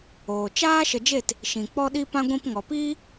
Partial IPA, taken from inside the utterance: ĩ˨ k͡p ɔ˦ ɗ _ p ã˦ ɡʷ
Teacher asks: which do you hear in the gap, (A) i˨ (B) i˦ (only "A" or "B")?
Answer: B